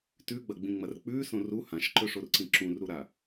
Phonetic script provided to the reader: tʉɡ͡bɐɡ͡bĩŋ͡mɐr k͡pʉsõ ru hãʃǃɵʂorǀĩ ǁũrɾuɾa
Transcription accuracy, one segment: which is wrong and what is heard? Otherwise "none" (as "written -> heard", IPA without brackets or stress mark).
none